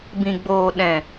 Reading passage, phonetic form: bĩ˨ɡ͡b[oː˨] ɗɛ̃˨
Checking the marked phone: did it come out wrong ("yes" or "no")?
no